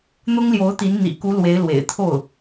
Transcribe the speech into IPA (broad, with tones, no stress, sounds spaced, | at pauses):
n̪ ʊ˥ ŋ l j o˧˥ ʊ̯ t̪ i˧˥ n n̪ ḭ˨˩ k u˧˥ l w e˧˥ ɪ̯ l w ḛ˨˩ ɪ̯ t̪ʰ o˥˩ ʊ̯